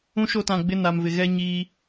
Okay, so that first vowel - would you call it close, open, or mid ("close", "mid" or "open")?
close